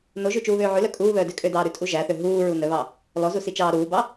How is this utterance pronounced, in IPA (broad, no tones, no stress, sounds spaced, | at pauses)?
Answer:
n o ʒ ʉ t͡ʃ uː β øː ʕ ʉ l œ kʼ uː β œː d ø kʼ ø d ɑː ɾ ʉ tʼ u ʒ æ θ ø ɦ uː ɹ u n œ β ɑ | l ɔ z u s i t͡ʃ ɑː ɾ uː b ɑ